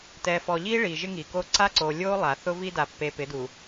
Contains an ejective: no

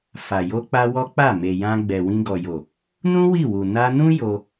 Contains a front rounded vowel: no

